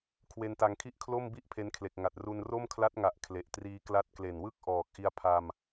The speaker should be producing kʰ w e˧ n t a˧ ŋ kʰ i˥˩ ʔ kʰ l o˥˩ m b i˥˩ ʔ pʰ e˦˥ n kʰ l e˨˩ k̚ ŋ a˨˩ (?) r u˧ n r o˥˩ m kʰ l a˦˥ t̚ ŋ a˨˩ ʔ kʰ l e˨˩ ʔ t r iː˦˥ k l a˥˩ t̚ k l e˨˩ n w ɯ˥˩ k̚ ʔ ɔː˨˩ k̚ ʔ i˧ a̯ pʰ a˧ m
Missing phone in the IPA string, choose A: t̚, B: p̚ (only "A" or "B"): A